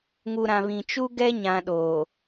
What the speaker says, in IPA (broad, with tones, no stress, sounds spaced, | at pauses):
ŋ u˨ ɾ ã˨ β ĩ˨ t͡ʃ u˦ ɡ ɛ˦ ɲ ã˨ ɗ oː˨